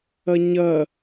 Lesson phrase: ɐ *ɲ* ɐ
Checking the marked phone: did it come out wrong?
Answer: no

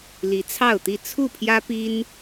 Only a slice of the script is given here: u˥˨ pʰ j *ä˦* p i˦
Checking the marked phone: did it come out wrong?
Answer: no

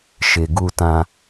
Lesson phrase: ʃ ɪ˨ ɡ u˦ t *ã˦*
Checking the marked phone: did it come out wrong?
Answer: no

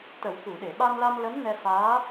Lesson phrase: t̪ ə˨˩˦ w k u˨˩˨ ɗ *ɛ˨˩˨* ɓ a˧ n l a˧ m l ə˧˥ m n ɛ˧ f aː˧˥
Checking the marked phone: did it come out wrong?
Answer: yes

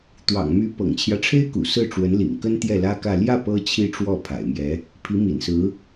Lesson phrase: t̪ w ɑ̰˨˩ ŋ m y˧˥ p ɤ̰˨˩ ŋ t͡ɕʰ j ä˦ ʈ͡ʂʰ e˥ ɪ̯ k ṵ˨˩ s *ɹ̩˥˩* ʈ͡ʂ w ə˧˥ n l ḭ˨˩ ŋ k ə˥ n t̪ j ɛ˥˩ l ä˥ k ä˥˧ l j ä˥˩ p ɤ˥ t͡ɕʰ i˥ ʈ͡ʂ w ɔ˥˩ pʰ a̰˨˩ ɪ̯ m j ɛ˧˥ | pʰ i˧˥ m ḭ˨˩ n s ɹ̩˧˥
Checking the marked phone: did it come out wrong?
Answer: no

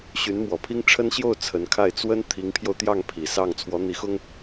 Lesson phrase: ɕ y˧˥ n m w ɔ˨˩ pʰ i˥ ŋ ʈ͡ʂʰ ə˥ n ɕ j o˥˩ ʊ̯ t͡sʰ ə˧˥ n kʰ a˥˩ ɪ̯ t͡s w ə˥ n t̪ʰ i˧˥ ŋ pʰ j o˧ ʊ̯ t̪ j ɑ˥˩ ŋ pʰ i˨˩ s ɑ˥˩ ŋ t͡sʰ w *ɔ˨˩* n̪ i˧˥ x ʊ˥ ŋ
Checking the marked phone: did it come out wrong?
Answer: yes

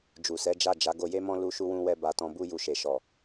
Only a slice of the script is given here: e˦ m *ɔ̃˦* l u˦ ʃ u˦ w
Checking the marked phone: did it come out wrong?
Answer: no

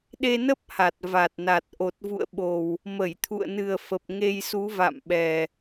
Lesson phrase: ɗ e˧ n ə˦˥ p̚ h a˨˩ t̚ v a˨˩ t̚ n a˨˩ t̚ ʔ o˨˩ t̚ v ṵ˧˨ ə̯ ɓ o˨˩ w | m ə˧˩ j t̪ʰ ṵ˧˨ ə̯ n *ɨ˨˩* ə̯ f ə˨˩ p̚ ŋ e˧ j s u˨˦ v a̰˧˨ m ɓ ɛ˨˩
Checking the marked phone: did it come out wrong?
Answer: no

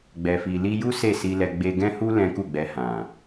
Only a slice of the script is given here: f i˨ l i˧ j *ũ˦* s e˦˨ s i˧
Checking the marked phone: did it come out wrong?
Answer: yes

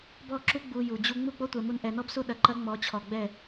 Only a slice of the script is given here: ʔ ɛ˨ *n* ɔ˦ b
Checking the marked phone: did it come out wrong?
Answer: no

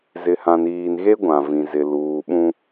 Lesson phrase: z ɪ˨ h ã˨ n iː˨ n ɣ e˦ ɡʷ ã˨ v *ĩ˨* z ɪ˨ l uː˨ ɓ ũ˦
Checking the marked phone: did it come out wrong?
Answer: no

